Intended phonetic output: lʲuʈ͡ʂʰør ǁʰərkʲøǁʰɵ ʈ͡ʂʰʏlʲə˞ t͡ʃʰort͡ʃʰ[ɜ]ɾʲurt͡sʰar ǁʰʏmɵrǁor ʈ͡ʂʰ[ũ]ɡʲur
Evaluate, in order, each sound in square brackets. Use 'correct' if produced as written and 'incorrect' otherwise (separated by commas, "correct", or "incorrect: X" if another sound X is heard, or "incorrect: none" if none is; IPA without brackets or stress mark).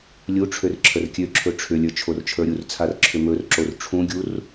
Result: incorrect: ə˞, correct